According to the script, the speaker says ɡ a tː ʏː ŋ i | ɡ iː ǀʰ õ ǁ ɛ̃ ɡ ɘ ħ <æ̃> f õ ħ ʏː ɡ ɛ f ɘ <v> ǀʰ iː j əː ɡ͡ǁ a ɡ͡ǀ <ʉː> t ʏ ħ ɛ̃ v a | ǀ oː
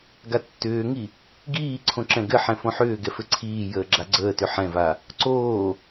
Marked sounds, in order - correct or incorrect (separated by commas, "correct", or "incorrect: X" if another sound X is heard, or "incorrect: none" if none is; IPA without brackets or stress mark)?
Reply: incorrect: ɛ̃, incorrect: none, incorrect: əː